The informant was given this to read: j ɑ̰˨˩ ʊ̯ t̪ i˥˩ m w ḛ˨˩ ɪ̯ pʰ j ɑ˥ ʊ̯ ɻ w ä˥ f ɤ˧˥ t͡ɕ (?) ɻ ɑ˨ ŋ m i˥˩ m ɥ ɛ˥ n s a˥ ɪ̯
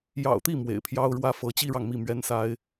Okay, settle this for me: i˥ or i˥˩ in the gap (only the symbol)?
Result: i˥